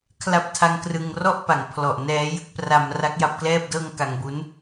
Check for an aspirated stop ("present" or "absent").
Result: present